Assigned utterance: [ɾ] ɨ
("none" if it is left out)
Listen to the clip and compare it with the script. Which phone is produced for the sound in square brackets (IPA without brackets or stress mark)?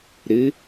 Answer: ɾ